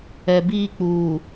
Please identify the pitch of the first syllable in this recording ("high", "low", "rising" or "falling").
low